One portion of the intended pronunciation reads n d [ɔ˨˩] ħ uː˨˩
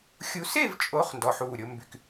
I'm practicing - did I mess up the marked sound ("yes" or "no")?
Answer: no